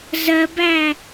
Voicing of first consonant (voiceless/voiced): voiced